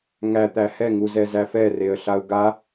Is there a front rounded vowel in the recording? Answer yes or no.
no